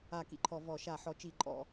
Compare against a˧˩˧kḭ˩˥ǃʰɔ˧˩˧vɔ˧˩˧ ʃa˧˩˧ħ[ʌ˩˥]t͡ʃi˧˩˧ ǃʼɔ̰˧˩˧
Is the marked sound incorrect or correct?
incorrect